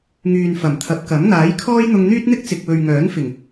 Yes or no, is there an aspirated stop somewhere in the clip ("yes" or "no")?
yes